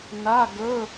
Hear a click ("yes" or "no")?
no